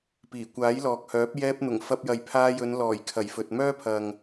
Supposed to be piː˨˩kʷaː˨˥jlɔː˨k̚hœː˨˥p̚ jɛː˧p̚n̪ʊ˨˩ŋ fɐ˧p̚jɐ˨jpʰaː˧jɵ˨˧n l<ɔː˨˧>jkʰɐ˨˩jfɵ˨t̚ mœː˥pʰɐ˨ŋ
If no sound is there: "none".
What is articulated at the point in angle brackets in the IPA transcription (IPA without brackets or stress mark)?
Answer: ɔː˨˩